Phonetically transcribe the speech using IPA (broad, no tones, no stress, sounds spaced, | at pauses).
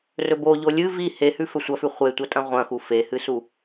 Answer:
r ɵ b o ʎ o lʲ ɨ v i h e h ʉ f ɵ sʷ ɐ f ʉ χʷ e tʷ ɐ tʼ ɐ̃ ʁʷ ɐ̃ x u f e h ɨ s u